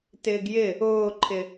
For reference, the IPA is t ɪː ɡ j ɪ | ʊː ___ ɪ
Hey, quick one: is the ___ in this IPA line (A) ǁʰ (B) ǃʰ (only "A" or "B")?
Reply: B